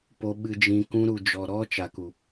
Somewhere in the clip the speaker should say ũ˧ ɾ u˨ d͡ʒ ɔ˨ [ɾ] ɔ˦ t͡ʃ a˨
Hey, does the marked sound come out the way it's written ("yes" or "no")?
yes